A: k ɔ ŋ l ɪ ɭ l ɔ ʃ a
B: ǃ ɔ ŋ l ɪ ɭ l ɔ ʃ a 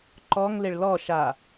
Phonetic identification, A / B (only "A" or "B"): B